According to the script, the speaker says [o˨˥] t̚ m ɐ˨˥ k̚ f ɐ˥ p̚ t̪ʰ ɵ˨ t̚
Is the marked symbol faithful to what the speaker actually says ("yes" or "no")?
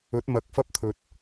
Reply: no